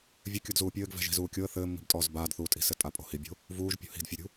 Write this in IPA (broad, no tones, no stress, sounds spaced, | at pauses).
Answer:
vʲ ɘ kʲ o d z uː pʲ ɘː ɡ v ɛ̤ ʒ i̤ z uː kʲ o ə̯ θ ɘː mː i̤ b tʼ ɔː z b aː d θ uː tʼ i̤ s ɘ tʼ a pʼ o̤ h i bʲ o̤ | v uː ʒ pʲ ṳ h i̤ d fʲ o ɾʲ ṳ